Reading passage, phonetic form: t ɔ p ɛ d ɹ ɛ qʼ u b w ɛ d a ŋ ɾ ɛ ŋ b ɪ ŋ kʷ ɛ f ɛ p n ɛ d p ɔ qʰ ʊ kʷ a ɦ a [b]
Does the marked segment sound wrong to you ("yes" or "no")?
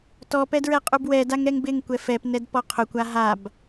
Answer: no